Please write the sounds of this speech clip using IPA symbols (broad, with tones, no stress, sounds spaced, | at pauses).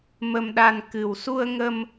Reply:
m ə˧ m ɗ a˧ n k ɨ˨˩ w s u˧ ə̯ ŋ ə˧ m